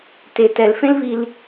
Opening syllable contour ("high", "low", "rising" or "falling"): low